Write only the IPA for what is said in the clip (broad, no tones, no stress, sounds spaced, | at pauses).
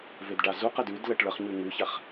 v e d ɖ a z u q ə d ʉ d l ə ʈ ɭ ə χ ɲ ʉ ŋ ʉ ç a χ